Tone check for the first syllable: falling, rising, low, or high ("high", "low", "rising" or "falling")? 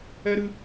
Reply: high